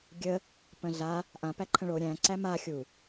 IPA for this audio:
ɡʲə | pə̃ɮa | ʔã pæǃʰə̃ɭo ɾʲæ̃ǀæ ma xʲu

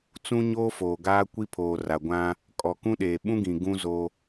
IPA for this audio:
t͡sũ˦ɲoː˦foː˨ɡaː˦ kʷi˦ pʰoː˨ra˨ɡʷã˦ | kʼɔ˨kũ˦ɗeː˨ ɓũ˦ɡĩ˨ ɡũ˦zo˦

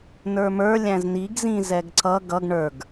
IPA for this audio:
nə˞mə˞ lʲæ̃zniɡ zĩzɛɡǀʌ ɡʌɡ ɳə˞ɡ

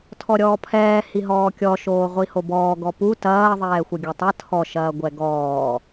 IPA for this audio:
tʰɔɾʲɔːpʰɛː hiɦɔːkʲɔ ʃoːʁʷihobɔː ɡɔpu tɐː ðˤɛːxʷɐɡʲɔtˤɐ tʰɔ ʃɐːɡʷɛɡɔː

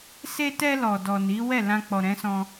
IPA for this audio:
se˧tɛ˧ lɔ˨dɔ˨ni˨˦ wɛ˦˨lã˧k͡pɔ˨ ɾɛ̃˨˦sɔ̃˧

